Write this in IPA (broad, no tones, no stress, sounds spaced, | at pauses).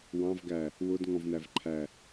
w ɑ̃ v ɡ æ | w ʊ d ŋ ɔ̃ v n æ v ǃʰ æ